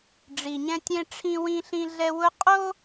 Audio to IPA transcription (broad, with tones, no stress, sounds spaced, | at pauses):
ɖ͡ʐ i˨ ɲ ɛ̃˦ tʲ ẽ˦ ʈ͡ʂʰ ĩ˦ w ĩ˦ ɬ ĩ˦ ɮ ɛ˦ w ʊ˦ qʼ o˦